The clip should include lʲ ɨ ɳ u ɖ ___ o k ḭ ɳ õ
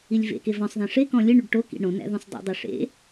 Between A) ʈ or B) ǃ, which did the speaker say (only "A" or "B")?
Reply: A